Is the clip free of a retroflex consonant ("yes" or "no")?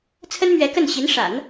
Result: no